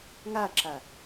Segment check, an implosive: absent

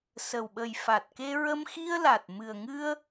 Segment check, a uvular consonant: absent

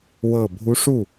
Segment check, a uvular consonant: absent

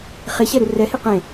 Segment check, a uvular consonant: present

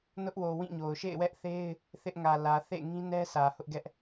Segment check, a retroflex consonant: absent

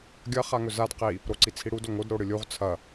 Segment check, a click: present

